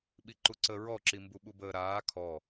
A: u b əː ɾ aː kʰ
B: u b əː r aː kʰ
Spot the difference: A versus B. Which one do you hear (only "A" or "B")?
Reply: A